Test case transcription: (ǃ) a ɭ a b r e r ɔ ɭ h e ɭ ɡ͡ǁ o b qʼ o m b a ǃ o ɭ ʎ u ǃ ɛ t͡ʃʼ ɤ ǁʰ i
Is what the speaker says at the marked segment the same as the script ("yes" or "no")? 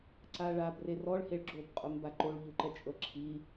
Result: no